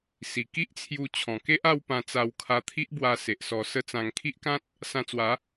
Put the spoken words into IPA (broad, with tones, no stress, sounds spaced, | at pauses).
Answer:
s i˨˩ k i˦ ʔ t͡sʰ j u˧ t͡ɕʰ ɔ̃˨˩ k e˦ ʔ a˥˧ w p ã˧ t͡s a˧ w kʰ a˧ t̪ʰ i˦ ʔ b w a˧ s e˨ ʔ s ɔ˧ s ə˦ t͡s ã˧ ŋ kʰ i˦ ʔ k ã˦ t̚ | s ã˧ t͡s w a˨˦